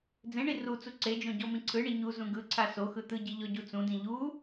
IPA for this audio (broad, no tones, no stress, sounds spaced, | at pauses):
d͡z ẽ ɳ i r u t͡s u ǀ e d͡ʒ õ ɟ ɔ m ĩ ǀʰ ɯ ɳ i ɲ u z ũ ɡ ɯ ǀʰ a s o x ɯ t̪ ɯ ɟ i ʎ ɔ ɟ u t͡s ũ d ĩ ʎ u